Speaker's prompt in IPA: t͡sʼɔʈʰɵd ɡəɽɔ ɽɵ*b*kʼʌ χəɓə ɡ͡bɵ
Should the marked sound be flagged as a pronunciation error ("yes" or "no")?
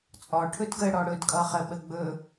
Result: yes